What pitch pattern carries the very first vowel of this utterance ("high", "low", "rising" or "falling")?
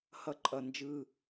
high